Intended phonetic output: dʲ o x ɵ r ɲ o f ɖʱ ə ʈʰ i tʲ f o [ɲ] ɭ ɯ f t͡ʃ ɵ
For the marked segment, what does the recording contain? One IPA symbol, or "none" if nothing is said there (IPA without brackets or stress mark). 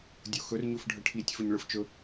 ɲ